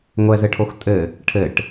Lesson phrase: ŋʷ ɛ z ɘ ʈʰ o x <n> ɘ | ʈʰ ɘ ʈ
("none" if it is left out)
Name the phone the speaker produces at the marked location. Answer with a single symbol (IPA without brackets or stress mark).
tʼ